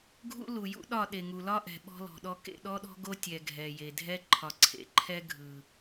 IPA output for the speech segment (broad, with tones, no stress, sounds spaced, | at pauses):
ɡʱ ṵ˦ l u˨ j ṵ˦ ɗ ɒ˦˨ ɗ e˨ ŋ u˨ l ɒ˦ ʔ ɛ̤˨ ɓ ɔ̤˦ l ɔ̤˨ ɗ ɔ˦ k ḛ˦˨ ɗ ɔ˦ ɗ ɔ̤˦ ɡ o˦ tʲ ɛ˨ ɡʱ ɛ˨ j e˨ dʱ ɛ˦ ǃʰ ɒ˨ ǀʰ ḛ˨ ǃʰ ɛ˦ ɡʱ ɯ˨